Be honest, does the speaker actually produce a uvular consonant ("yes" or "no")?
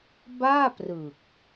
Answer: no